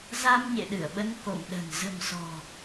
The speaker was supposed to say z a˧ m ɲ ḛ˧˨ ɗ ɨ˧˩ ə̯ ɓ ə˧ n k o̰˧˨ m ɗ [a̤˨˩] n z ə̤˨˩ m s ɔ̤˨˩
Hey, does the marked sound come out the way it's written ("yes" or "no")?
no